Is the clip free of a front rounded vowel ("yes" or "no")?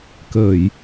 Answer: yes